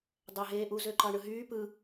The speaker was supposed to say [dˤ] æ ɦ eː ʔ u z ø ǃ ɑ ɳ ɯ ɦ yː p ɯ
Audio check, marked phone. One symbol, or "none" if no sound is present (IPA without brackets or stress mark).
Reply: dˤ